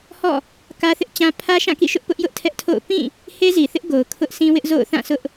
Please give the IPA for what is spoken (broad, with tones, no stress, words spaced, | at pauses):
hɔ̰˦˨ | kä˦θɪ˦ʔt͡ɕã˦ pʰä˦ʃã˦˨kḭ˦˨ʃʊ˦ʔ pʊ˦ʔjʊ˦ʔ tʰɛ˦ʔtʰo̰˦˨ʊ̯ pĩ˦˨ | he˦zi˨θɪ˦ʔ ɡo˨ʊ̯kʰʊ˦ʔsĩ˦wɪ˦ʔ zo̰˦˨ʊ̯ θã˦˨ sʰʊ˦ʔ